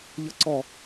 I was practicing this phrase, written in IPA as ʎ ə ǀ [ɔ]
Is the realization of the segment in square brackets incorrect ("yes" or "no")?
no